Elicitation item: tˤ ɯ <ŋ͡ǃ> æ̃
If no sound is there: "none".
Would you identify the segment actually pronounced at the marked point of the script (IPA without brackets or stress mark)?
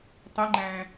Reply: ŋ͡ǃ